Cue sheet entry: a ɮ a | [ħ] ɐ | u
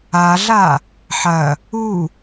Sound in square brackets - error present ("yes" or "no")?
no